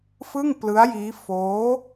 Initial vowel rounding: unrounded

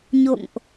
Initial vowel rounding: rounded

